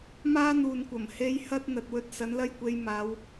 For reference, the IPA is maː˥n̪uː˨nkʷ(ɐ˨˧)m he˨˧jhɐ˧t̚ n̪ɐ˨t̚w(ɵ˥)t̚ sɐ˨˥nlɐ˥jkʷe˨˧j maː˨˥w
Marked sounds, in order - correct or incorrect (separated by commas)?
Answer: incorrect, correct